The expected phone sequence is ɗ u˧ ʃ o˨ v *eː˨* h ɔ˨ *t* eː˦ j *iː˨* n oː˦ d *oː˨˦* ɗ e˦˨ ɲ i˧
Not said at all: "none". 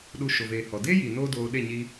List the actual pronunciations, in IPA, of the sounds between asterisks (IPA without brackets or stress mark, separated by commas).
eː˨, d, iː˨, oː˧